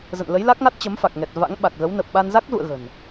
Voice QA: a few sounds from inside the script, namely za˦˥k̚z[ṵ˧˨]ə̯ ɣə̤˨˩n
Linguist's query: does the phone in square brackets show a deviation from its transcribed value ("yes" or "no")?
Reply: no